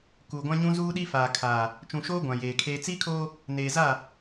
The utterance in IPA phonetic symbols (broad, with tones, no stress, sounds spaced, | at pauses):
k uː˨ ɡʷ ã˦ ɲ ũ˦ z uː˦ ɗ i˦ f aː˨ kʰ aː˨ | t͡ʃ ũ˨ ʃ oː˦ ɡʷ ã˨ j eː˨ kʰ eː˦ t͡s iː˦ kʰ oː˦ | n eː˨ z a˦˨